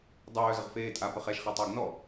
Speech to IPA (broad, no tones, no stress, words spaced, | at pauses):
dˤœːzəʁ feːtʼa pəχɛʃχɛ tˤœːɡnɔ